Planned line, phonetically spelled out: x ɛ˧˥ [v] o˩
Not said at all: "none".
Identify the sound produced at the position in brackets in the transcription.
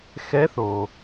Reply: θ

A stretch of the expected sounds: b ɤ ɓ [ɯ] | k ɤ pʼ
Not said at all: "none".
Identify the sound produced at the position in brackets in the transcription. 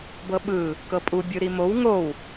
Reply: ɯ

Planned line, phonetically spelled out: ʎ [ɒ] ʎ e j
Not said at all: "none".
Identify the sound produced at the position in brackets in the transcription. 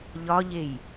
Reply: ɒ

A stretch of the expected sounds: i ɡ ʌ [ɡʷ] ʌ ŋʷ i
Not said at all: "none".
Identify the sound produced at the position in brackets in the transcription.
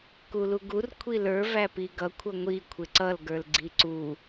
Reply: kʷʰ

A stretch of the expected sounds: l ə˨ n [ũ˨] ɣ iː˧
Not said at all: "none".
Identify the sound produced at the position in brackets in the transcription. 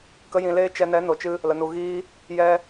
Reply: u˨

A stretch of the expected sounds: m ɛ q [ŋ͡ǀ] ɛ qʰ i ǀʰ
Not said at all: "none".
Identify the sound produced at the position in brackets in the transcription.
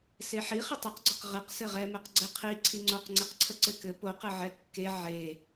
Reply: ɡ͡ǀ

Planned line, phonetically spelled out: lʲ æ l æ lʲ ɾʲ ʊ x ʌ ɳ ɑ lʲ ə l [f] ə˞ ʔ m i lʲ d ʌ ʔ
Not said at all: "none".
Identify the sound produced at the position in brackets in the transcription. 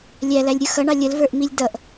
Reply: v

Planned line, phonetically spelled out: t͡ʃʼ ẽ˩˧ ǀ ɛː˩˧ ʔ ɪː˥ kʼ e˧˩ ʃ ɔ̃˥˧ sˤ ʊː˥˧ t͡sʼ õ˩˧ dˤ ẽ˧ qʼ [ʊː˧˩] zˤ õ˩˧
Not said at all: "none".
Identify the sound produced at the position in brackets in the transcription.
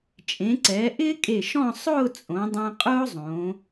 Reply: ʊː˥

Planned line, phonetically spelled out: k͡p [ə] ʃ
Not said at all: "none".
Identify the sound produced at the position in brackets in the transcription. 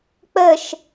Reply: ə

